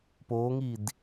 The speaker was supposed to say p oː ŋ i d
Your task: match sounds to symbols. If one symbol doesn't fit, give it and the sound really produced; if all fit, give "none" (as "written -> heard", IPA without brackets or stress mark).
none